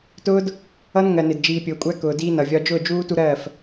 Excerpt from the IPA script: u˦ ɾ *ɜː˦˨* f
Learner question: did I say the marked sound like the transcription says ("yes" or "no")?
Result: yes